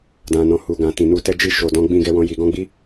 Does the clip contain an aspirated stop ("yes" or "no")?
no